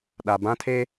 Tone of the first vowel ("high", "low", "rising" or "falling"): low